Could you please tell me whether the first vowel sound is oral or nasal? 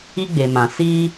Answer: oral